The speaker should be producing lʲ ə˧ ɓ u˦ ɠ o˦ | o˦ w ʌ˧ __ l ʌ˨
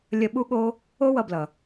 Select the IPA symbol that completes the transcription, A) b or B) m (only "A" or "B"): A